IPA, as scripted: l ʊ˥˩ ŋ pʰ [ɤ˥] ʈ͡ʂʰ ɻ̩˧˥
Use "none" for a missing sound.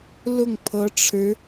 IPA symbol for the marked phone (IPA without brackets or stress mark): ɤ˧˥